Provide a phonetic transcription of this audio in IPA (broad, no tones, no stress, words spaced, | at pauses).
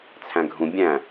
t͡sʰæ̃ɡʱũ bʲæ̃